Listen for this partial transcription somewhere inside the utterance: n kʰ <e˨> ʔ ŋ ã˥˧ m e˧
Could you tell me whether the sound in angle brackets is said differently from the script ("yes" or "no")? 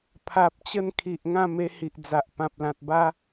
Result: yes